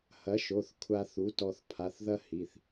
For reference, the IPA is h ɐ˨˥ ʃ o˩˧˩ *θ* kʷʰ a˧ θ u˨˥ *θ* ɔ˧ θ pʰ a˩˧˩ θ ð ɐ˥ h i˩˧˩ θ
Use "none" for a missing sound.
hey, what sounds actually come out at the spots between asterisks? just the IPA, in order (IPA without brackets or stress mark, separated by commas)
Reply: θ, t